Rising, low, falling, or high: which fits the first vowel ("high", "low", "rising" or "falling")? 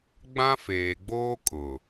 high